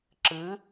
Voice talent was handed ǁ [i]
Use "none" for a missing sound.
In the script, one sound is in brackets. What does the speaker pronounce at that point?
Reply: ɨ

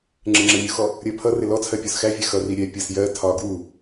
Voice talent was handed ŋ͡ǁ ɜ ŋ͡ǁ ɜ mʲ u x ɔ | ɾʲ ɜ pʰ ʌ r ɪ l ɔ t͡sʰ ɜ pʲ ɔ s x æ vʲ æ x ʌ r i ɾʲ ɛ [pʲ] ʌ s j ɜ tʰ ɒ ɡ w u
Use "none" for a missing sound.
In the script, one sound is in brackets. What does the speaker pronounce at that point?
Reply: pʲ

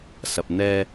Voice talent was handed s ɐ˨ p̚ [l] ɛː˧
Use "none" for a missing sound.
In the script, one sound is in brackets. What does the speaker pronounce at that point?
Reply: n̪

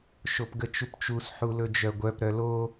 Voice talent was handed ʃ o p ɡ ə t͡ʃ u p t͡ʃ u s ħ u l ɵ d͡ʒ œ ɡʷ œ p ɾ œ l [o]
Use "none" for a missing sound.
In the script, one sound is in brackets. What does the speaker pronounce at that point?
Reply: o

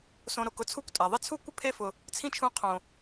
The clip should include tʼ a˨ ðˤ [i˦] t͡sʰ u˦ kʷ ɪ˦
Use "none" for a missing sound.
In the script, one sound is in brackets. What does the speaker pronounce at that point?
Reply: ɪ˦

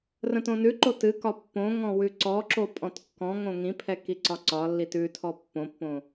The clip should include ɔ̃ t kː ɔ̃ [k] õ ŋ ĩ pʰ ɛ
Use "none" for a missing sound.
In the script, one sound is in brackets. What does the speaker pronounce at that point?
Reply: ŋ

